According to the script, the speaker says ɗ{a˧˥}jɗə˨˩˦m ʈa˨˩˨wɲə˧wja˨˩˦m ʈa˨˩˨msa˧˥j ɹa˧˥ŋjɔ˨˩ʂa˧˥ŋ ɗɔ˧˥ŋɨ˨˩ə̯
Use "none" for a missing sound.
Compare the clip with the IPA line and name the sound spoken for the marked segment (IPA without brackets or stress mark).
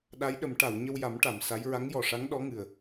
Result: a˧˥